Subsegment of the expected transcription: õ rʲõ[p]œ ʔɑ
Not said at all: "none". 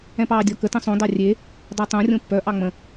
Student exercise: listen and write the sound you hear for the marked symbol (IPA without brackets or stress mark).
pː